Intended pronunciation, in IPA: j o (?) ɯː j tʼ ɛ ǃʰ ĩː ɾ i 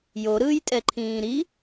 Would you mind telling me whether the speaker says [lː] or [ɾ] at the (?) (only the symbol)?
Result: ɾ